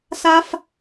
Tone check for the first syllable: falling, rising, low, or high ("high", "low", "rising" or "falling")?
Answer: high